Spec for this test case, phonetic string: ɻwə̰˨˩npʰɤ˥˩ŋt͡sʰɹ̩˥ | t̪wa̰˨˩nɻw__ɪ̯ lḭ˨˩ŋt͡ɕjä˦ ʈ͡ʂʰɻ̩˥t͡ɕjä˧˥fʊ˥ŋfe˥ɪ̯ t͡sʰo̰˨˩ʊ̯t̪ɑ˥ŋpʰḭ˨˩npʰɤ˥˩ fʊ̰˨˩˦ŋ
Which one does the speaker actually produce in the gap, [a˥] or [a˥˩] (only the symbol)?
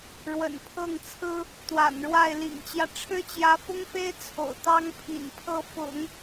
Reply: a˥˩